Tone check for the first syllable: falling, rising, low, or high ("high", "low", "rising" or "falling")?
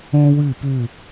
high